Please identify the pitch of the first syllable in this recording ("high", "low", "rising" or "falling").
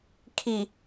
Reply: low